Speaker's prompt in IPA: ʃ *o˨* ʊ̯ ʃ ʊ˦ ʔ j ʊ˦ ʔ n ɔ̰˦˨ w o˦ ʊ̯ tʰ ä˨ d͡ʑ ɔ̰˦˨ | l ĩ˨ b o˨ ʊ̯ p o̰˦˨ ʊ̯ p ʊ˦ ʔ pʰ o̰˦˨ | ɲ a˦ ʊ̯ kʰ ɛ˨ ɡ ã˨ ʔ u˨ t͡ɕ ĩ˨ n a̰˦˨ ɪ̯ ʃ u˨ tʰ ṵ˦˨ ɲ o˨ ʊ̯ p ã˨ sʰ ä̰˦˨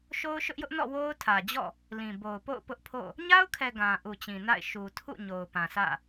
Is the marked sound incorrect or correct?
incorrect